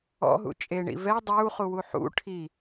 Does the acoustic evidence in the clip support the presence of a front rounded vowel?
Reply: no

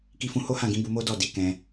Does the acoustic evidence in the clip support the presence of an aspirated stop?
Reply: no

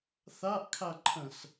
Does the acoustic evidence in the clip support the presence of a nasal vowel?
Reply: yes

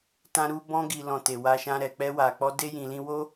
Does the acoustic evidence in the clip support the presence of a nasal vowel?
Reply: yes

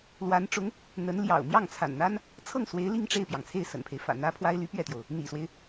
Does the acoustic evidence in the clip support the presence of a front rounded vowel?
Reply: yes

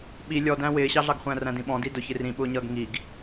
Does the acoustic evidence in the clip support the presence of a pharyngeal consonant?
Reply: no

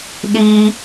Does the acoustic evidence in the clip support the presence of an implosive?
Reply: yes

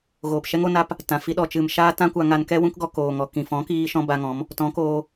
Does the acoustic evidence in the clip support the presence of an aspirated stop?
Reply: no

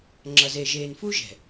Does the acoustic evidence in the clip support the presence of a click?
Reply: yes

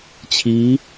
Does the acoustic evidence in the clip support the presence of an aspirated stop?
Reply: yes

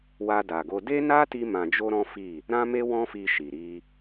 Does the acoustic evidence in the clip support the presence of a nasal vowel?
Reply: yes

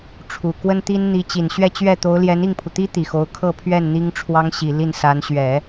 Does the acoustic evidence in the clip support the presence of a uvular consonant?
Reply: no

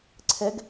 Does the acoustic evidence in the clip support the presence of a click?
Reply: yes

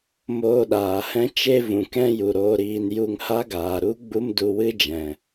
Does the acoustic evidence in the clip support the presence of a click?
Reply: no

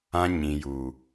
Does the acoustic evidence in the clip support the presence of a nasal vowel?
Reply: yes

